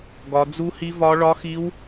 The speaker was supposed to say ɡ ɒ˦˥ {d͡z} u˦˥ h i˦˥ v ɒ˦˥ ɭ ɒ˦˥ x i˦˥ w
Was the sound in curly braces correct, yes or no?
yes